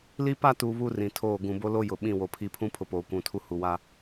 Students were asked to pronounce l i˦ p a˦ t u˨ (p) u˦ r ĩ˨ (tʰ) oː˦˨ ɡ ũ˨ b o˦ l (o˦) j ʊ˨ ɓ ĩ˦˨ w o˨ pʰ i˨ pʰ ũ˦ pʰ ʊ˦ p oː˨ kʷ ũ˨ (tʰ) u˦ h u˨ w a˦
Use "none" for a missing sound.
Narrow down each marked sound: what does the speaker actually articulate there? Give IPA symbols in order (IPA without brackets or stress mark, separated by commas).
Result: β, tʰ, o˦, tʰ